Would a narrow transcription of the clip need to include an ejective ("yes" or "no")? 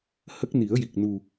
no